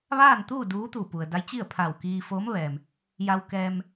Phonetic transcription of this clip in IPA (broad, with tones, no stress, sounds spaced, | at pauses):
ʋ aː˥˨ n t̪ uː˥˨ d uː˧˥ t̪ u˧˩ p u˩ ə̯ d a˧˥ j t͡ɕ i˥˨ ə̯ pʰ a˧˩ w k iː˧ f oː˧˥ m ʋ ɛː˩ m | j a˧ w k ɛː˧ m